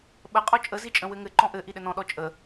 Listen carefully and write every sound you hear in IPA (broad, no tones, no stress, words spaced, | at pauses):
ɓəqʼɔ t͡ʃʼəzit͡ʃʼə̃ wɘŋɘǃɔ̃ ʔɘ ʔiɗɘnɔ̃ ɗɔt͡ʃʼə